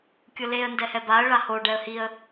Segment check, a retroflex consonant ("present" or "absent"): present